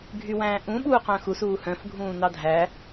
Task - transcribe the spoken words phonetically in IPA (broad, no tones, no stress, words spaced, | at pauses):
ɡʱywæ̃ːʔũ ɓuːqœ̃xus uːhœ̃f ɡʱũːnɑdʱæ